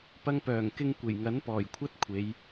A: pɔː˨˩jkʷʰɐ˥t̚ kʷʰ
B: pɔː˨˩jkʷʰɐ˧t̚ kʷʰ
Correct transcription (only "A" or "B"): A